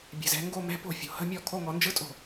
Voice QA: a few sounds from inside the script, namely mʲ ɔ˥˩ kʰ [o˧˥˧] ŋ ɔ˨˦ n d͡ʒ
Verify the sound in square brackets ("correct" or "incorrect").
correct